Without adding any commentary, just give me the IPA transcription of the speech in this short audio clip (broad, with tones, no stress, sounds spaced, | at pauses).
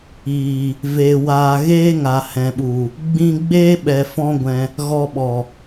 iː˨ | v eː˨ w aː˨ ɣ eː˦ ŋ a˨ h ɛ̃˨ ɓ u˨ | ɡ͡b ĩ˧ ɡ͡b eː˦ ɓ ɛ˨ f ɔ̃˦ ɡʷ ɛ̃˧ | ɣ ɔ˧ ɓ ɔ˨